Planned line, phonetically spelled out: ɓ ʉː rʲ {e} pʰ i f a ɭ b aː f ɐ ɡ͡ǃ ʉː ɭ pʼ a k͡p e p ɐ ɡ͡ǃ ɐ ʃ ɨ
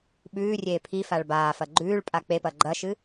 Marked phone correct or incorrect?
incorrect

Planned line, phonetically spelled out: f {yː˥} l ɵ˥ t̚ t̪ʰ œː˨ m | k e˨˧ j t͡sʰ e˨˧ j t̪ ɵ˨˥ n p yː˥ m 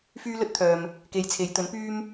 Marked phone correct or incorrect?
correct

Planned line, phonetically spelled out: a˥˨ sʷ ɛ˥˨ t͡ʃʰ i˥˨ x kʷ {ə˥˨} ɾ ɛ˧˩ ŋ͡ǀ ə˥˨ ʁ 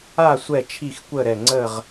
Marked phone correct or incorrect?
correct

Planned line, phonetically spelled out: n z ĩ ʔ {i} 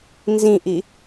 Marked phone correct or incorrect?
correct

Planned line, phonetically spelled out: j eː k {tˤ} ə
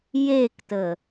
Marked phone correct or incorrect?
incorrect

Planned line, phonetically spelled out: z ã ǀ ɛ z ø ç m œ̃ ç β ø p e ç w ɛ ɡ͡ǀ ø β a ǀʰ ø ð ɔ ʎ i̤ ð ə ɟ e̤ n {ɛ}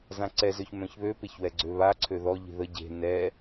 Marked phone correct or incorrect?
correct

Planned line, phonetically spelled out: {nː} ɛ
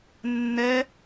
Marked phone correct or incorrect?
correct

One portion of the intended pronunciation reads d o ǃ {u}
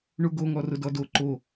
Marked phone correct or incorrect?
incorrect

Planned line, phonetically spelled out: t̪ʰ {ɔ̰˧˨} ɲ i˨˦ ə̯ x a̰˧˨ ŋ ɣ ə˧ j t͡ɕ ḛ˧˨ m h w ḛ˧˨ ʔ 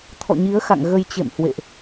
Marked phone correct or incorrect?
correct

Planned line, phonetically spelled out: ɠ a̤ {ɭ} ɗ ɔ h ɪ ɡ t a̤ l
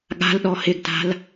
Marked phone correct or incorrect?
incorrect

